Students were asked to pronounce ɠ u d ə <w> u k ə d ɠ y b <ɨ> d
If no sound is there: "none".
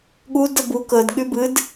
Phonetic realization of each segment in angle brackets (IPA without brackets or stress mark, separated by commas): b, ɨ